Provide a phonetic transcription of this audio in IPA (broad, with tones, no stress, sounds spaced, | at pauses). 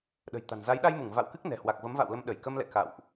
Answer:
ɗ ə̤˨˩ j t̪ a̤˨˩ n z a˨˦ j ɗ a˧ j m u˧˩ ŋ v a̰˧˨ w k ɨ˦˥ k̚ n ɛ̤˨˩ h w a˨˩ k̚ v ə˨˦ m v a̰˧˨ w l ə˧ m ɗ ə˧˩ j k ə˧ m l ɛ̰˧˨ k a̰˧˨ w ʔ